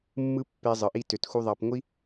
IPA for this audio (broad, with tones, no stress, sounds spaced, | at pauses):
mː ɯ˦ pː e˧ zˤ ɯ˨ ʔ i˧ t ø˨ t x u˧ ðˤ ɑ˧ p ŋʷ i˦